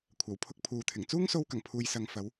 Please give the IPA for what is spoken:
kʷʰ ɐ˨˩ w pʰ ʊ˧ k̚ pʰ uː˨ t̪ʰ ɪ˨˩ ŋ t͡s uː˥ ŋ s o˧ w k ɐ˨˩ ŋ pʰ uː˨ j s ɐ˨ ŋ f ɐ˨˧ w

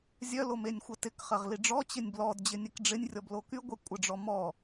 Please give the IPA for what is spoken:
zʲ œ l o m e nʲ xʷ ə t ɪ k χ ɐ ʁ l i ɖ͡ʐ ɔ t͡ɕ ɪ nʲ b l ɔ d d͡ʑ ɪ nʲ ɛ k ɖ͡ʐ ɪ nʲ rʲ ɔ b l o k y ɡʷ ɛ kʷʼ ə ɖ͡ʐ ɔ m ɔ

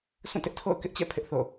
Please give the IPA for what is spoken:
sʰ ũ˦˨ t ɪ˦ ʔ tʰ o̰˦˨ ʊ̯ k ɪ˦ ʔ t͡ɕ ɛ̰˦˨ pʰ ɪ˦ ʔ θ o̰˦˨

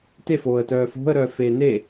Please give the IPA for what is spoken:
t e f oː ə̯ t œː f o̤ ə̯ ɾ œː f eː n e

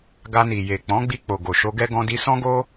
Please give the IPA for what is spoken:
ɡ a˧ n i˨ j e˨ k͡p ɔ̃˨˦ ɡ͡b i˧ k͡p o˨ ɡ o˨ ʃ o˧ ɡ ɛ˦ ɡ ɔ̃˧ d i˧ s ɔ̃˦ ɡ o˦

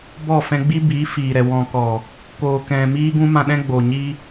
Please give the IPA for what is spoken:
b ɔ˦˨ f ɛ̃˧ ɡ͡b i˦ b iː˨˦ f iː˨ ɾ ɛ˨ w ɔ̃˨ k ɔ˨ | k oː˨ k ɛ̃˨ m iː˦ ɡ ũ˦ m ã˧ ɗ ɛ̃˦ ɡ͡b o˨ ɲ iː˦

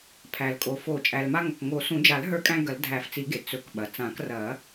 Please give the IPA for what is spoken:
pʰ æ˩ l kʼ o˩ f o˨˩˦ t͡ʃʼ æ˩ l m a˧ ŋ ɐ˩ k ŋ o˨˩˦ s ũ˨˩˦ d͡ʒ a˨˩˦ l ɦ ə˞˧ kʼ æ̃˧ ɡ ɐ˨˩˦ l dʱ æ˨˩˦ f t͡s i˨˩˦ ɡ e˩ t͡s ɵ˨˩˦ k ɓ ɐ˩ t͡s ã˨˩˦ k r ɐ˨˩˦

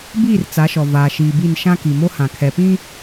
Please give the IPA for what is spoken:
b iː˦˨ r t͡s a˨˦ ʃ ɔ˨ v aː˨ ʃ iː˨ b i˦˨ n ʃ ã˦ k i˨ m o˦ h ã˨ kʰ ɛ˨ p ĩ˦

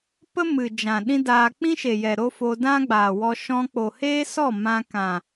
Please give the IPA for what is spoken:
p ə˦ m ɨ˨ d͡ʒ ã˨ ɗ ĩ˦ d aː˧ k͡p ĩ˦ ʃ e˨ j ɛ˨ ɾ o˦ f o˧ d ã˦ ɡ͡b aː˨ w ɔ˧ ʃ ɔ̃˧ k͡p o˨ h eː˦ s ɔ˦˨ m ã˧ k ã˨

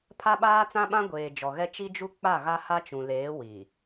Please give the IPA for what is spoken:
pʰ a˦ ɓ aː˦ t͡s ã˦ ɓ ã˦ ɡʷ eː˨ d͡ʒ ɔ˨ ɣ ɛ˦ t͡ʃ i˦ d͡ʒ u˦ k͡p a˦˨ ɣ a˦ h a˦ t͡ʃ ũ˨ l eː˨˦ w i˨

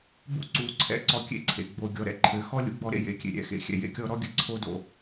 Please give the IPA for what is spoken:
b ṵ˦ ǀ u˨˦ ǀʰ ɛ̰˦ ǀ ɔ˧ kʲ ḛ˧ ǀʰ ḛ˨ ɡ͡b o˨ ɡʲ ɔ˨ ɾ ɛ̰˦ ǃʰ ɘ˨˦ x ɔ˦ lʲ ṵ˦ ɡ͡b ɔ˧ ɾ ḛ˧ j ḛ˨ kʲ ḛ˨ ɾʲ ɛ̰˨ x ḛ˨ xʲ ɛ̰˨ j ḛ˧ kʲ ɔ˧ ɾ ɔ˦ ɡʲ ɘ˧ ǀʰ o˦ d o̰˨

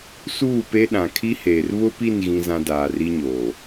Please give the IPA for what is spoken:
s uː˦˨ p e˦ ɗ ã˨ kʰ i˦ h eː˨ r β ʊ˦ p i˦˨ n ɣ ĩ˦ z ã˦ d aː˨ r i˦ ɲ oː˨

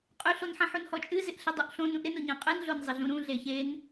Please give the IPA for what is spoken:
qʼ y ɬ o n ħ ɐ̃ ħ u n h ɔ t͡ʃʼ ɨ z ɪ ʔ ɬ ɪ dˤ u ʔ ɬ õ n ũ ʔ ɾ ɪ n o ɲ ɐ̃ qʼ ɨ n ɮ o n zˤ ɪ ɮ ũ ɾ ũ ɮ e ç e n

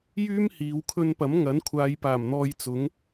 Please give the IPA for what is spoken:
j yː˥ m h iː˨˧ w kʰ ɵ˧ n p ɐ˨˥ m ŋ ɐ˨˥ n kʷʰ aː˨˧ j p aː˨˩ m n̪ ɔː˧ j t͡s ʊ˨˥ ŋ

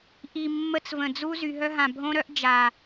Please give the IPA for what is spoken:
ʔ i˨ mː ə˦ t͡s v ə̃˨ d͡z u˦ z y˨ ɦ œ˦ ɦ ã˨ bʱ õ˦ ɾ œ˦ ʔ d͡ʒ a˨

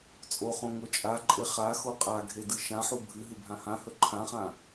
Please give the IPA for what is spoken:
t͡sʼ o χ õ ŋ o t͡ʃʼ a ǃʼ e χ a x o qʼ a ɡʱ e d ɨ ʃ ã ħ u bʱ ɨ ɦ ɨ bʱ ã h ã h ɵ ǃʰ ã χ ã

